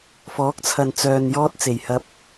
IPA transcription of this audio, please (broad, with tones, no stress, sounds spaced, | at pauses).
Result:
f ɔː˨˥ k̚ t͡sʰ ɐ˨ n t͡s œː˨ n j ɔː˥ t̚ t͡s e˨˩ j h ɐ˧ p̚